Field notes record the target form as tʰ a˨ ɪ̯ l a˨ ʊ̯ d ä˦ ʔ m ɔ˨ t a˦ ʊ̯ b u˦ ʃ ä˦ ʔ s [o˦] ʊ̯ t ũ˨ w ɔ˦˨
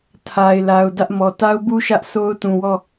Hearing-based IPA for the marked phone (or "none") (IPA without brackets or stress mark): o˦